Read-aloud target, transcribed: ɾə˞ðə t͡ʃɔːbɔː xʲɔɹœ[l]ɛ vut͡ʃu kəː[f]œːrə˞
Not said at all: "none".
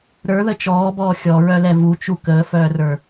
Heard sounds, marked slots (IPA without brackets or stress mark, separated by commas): l, f